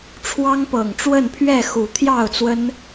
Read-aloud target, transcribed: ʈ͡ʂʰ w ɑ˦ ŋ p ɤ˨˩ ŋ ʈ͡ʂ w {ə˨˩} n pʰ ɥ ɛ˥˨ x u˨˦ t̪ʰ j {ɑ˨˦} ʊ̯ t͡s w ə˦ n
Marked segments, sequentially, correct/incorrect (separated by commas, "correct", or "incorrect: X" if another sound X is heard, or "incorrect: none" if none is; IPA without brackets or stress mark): incorrect: ə˥˨, incorrect: ɑ˥˨